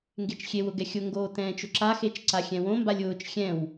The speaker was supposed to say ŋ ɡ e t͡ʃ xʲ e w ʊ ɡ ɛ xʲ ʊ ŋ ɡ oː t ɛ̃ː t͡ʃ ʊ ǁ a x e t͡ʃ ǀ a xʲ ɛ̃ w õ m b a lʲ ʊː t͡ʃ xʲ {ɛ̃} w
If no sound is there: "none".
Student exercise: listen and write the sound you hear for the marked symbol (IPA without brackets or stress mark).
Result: ɛ̃